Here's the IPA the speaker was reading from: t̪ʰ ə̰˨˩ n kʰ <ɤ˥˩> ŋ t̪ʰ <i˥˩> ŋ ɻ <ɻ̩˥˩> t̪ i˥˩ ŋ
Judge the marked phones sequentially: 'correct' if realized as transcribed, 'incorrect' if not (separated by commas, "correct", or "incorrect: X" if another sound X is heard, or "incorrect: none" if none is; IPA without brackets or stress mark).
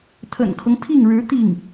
incorrect: ɤ˦, correct, incorrect: ɻ̩˧˥